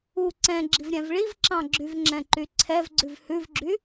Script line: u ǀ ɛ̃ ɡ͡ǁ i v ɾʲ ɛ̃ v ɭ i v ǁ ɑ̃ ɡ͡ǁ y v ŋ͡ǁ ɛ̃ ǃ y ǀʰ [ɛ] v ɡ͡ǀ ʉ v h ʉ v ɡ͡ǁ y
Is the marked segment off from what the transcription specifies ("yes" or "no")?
no